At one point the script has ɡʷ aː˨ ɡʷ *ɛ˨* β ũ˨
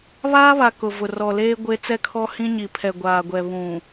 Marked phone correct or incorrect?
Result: correct